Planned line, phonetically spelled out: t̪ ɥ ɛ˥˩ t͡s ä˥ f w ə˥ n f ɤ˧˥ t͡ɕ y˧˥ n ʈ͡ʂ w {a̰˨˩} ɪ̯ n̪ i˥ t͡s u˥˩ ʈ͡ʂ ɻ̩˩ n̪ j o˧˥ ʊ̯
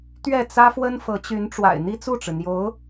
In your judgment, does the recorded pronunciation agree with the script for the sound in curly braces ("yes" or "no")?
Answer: yes